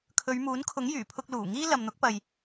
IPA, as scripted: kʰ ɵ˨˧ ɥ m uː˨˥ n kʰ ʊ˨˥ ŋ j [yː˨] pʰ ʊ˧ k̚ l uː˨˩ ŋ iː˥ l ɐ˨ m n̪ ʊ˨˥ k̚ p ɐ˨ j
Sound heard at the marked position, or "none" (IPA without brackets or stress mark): yː˨˩